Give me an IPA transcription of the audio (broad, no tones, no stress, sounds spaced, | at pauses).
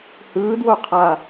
h ɯː d w o qʰ a